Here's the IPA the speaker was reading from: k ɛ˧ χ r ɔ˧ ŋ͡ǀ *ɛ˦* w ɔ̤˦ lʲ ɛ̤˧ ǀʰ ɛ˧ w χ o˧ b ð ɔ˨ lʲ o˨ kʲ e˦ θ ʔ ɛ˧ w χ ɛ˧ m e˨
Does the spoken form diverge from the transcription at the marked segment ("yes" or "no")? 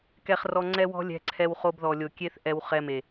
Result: no